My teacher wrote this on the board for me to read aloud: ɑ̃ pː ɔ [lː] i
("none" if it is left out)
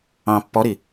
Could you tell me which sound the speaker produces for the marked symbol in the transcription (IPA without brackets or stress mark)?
ɾ